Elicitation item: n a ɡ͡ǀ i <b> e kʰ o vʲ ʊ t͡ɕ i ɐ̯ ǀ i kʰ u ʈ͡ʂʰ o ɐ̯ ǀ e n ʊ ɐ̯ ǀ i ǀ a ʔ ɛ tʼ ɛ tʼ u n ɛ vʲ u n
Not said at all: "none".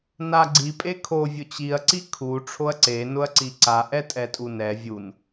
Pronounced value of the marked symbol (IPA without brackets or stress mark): pʼ